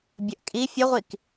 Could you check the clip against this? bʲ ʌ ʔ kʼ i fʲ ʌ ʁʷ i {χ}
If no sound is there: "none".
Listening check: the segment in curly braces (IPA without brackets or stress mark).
k